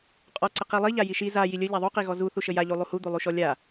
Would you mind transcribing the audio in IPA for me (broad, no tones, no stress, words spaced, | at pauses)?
qʼɔǀə qilˠiʎa jiʃi za jilʲə ʎaðˤuqi ɣɔzu θuʃəja ʎulˠuhu d̪ulˠuʃɔlʲa